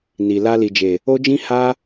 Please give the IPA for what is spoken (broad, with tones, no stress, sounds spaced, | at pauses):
n i˨ l a˧ l i˨ d͡ʒ e˨ | o˦ d͡ʒ ĩ˦ h a˦